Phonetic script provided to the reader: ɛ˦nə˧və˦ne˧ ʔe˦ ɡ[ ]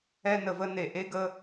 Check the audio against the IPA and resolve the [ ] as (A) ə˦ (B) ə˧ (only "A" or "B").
A